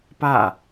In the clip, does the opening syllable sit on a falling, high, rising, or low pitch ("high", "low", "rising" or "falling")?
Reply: falling